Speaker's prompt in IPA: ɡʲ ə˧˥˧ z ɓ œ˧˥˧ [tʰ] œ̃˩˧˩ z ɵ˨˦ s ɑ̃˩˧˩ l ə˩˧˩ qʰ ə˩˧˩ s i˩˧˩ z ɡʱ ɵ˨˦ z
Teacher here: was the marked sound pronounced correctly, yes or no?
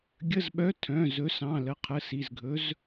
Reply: yes